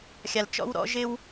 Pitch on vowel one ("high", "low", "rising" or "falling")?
low